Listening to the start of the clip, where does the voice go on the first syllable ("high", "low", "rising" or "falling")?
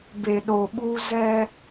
low